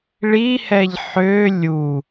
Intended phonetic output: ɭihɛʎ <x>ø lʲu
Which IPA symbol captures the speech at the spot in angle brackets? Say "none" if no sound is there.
ħ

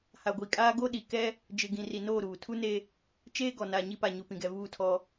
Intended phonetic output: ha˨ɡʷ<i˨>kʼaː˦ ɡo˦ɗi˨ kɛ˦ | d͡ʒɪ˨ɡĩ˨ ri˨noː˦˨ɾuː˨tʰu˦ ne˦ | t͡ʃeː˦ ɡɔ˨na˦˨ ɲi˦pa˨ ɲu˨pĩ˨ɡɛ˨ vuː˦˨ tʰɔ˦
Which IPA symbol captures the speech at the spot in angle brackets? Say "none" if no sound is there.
i˨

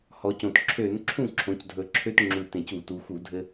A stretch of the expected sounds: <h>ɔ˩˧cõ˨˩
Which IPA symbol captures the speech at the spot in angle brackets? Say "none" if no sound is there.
h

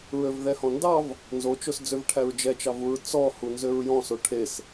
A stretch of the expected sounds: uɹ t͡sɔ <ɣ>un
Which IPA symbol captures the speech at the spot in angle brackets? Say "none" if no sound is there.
h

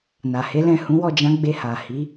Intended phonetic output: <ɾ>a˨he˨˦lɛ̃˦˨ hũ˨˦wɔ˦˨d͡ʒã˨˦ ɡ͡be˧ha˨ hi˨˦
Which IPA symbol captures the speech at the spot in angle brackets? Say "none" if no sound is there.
n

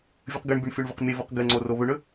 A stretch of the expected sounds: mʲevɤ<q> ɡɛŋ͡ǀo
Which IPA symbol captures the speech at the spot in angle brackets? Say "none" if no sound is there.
q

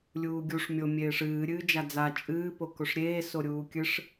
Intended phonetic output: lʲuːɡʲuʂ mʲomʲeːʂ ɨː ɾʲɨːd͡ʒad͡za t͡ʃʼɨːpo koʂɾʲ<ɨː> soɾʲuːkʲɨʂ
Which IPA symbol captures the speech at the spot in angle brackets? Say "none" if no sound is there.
eː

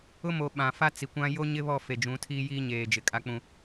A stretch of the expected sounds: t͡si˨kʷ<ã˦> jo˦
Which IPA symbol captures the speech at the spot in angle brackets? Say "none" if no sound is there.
ã˦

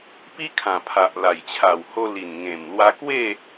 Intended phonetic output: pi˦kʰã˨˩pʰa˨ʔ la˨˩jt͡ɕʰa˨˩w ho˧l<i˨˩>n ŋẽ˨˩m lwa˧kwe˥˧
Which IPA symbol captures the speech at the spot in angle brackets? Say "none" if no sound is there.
i˨˩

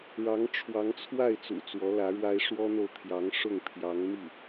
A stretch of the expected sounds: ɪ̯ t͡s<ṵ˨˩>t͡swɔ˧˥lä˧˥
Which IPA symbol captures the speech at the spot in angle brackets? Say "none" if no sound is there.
ṵ˨˩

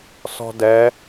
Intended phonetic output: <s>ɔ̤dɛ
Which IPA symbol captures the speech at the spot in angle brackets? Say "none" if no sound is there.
s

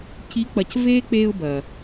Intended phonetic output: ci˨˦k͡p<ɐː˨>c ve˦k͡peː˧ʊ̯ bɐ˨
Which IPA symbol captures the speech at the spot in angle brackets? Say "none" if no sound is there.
ɐ˨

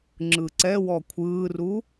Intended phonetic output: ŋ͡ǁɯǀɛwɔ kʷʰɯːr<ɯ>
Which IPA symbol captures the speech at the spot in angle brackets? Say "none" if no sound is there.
u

